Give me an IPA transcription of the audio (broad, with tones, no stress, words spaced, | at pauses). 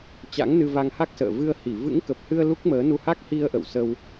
t͡ɕa̰˧˥ŋnɨ˧ va˧ŋha˦˥k̚ sə̰ː˧˨ vɨ˧ə̯hi˧˩ vɨ̰˧˥ŋkə˨˩p̚hɨ˧ə̯ lu˦˥k̚məː˨˦nu˧ ha˦˥k̚hi˧ə̯ ʔə̰˧˨wsə˧w